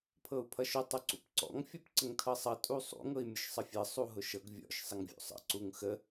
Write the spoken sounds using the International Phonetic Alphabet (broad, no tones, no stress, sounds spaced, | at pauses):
pʰ ɤ u̯ pʰ ʌ ʃ ʊ tˤ ʊ ǀ ṵ p ǀ ɔ̰ ŋ fʲ ɔ p ǀ ə ŋ tʰ ɤ sˤ ʌ tʼ u sˤ ṵ ŋ ɤ i̯ mʲ ʊ ʃ sˤ ə fʲ ɤ sˤ u ɦ ʊ ʃ ɤ ɡ vʲ ɔ̰ ʃ sˤ ə ŋ vʲ ṵ sˤ ə̰ ǀ u ŋ x ə